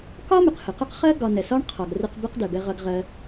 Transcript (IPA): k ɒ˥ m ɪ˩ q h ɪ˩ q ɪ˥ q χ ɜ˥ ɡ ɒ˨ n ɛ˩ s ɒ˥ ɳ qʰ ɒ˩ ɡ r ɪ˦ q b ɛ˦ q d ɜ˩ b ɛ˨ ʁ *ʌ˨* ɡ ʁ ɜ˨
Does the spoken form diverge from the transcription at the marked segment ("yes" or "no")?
no